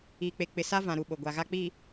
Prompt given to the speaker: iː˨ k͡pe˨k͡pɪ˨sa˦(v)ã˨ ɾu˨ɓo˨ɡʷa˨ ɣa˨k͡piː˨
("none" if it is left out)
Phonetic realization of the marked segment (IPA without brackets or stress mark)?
v